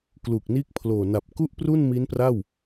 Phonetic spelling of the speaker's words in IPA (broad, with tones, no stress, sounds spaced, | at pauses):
k l uː˨˩ k̚ n iː˦˥ k̚ pʰ l oː˨˩ n a˨˩ p̚ k u˥˩ ʔ p r u˥˩ n m i˦˥ n p r a˥˩ w